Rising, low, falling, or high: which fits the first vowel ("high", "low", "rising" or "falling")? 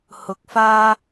low